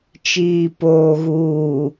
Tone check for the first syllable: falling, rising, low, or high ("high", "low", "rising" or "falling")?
low